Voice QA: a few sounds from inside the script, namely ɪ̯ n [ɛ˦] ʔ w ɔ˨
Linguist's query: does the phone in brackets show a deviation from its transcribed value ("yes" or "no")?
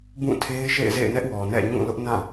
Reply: no